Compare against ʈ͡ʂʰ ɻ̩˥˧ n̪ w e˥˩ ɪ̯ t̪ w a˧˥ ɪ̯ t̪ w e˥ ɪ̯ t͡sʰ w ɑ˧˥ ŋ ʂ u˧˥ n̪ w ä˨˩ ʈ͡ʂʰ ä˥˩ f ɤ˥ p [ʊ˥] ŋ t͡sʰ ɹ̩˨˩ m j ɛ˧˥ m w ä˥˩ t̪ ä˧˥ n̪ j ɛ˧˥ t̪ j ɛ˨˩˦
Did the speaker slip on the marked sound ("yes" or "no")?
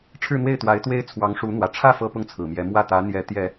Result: no